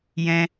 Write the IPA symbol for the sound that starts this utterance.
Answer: j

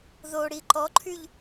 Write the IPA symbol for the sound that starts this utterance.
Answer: ð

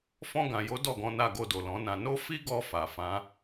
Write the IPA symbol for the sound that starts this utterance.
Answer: f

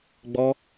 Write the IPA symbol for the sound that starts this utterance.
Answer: ɡ͡b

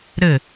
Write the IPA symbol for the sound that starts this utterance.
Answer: ɾ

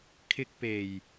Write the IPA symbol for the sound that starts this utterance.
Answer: kʰ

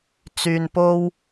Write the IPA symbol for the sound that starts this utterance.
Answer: t͡s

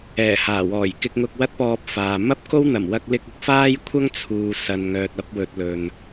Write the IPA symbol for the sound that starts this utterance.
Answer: ɛː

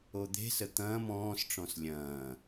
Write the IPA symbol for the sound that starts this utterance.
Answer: o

